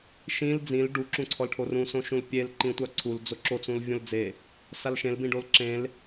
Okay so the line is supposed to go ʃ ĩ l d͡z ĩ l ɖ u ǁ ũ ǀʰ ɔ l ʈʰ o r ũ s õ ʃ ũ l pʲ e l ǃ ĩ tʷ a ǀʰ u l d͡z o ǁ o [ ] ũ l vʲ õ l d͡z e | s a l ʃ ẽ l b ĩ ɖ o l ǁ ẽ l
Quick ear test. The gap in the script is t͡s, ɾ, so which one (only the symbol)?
t͡s